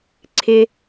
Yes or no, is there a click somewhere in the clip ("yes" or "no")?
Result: yes